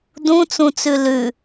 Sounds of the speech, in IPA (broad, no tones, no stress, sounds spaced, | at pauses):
d ũ t͡s ũ t͡s ʉ l ʉ